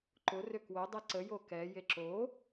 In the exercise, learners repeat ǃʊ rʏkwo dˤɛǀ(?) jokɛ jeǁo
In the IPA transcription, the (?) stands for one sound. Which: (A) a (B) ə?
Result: B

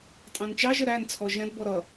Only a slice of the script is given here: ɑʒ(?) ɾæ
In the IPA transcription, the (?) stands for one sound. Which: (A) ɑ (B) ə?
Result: B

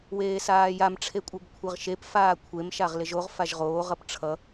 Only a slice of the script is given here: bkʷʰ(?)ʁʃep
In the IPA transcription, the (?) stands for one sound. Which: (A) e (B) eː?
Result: A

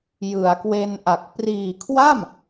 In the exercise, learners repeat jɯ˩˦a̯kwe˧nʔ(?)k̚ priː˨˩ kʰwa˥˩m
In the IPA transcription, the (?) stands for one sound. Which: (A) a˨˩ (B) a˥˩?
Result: A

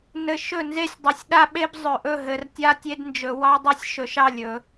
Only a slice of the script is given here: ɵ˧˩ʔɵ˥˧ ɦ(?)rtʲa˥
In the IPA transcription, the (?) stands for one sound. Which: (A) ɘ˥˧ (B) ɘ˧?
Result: B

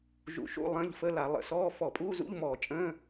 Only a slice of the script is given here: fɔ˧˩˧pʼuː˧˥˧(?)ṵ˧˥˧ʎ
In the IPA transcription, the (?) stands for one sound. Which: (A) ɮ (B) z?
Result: B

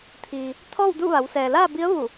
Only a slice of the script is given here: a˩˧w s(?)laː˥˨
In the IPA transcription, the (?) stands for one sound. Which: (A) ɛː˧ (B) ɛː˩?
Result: B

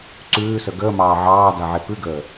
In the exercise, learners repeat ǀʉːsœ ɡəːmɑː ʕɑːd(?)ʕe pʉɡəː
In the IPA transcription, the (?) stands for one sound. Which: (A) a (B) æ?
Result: A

